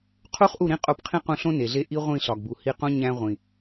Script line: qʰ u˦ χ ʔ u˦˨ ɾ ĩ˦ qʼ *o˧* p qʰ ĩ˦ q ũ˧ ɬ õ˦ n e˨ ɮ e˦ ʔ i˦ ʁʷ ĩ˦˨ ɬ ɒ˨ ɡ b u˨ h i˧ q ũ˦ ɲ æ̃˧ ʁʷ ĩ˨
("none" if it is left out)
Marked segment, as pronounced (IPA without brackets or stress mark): o˧